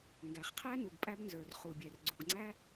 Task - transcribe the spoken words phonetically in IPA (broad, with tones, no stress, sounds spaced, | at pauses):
ŋ ɡ æ˩ χ qʰ æ˥ n u˩ ɡ pʼ æ˥ b n z ə˞˩ r χ u˩ bʲ ɛ˩ r ɡ͡ǀ u˩ ɡ ŋ͡ǀ æ˥